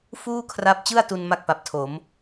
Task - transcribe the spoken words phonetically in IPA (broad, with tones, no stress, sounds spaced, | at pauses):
f uː˥˩ kʰ r a˦˥ p̚ t͡ɕ ɯ˥˩ a̯ t u˧ n m a˥˩ k̚ p a˨˩ p̚ tʰ o˩˦ m